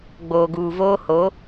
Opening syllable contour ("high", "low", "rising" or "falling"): low